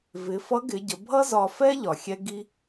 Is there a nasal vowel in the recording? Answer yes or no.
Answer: no